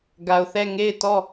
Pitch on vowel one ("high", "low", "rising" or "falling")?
low